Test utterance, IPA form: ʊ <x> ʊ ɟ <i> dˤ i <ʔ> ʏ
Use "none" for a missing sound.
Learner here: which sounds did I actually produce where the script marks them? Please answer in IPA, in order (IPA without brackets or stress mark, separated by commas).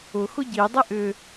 x, i, ʔ